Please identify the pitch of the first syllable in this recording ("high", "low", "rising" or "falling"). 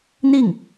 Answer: falling